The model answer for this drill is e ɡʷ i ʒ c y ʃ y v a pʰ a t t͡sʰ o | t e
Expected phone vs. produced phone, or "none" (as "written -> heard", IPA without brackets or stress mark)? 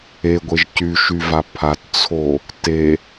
i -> e